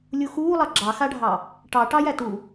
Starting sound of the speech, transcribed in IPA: lʲ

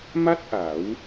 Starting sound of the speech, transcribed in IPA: m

